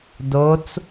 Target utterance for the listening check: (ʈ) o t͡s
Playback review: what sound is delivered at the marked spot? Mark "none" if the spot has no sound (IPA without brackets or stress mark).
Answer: d